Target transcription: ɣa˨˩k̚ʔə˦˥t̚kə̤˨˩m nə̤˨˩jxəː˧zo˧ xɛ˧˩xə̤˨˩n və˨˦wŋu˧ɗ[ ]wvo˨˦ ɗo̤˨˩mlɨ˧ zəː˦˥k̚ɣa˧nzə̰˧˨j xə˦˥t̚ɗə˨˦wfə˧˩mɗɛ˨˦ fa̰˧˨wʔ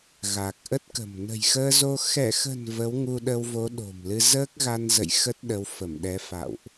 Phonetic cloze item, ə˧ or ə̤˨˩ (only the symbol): ə˧